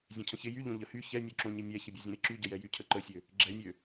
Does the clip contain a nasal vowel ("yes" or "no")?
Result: yes